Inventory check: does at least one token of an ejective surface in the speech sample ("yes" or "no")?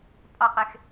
yes